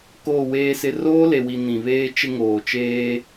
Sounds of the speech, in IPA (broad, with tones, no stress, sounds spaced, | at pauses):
k oː˦˨ w eː˦ s ɪ˦ r oː˦ l e˨ w i˨ n ĩ˨ β eː˦ t͡ʃ ɪ˦ ŋ oː˨ t͡ʃ eː˦